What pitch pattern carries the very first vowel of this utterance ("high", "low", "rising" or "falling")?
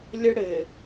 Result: high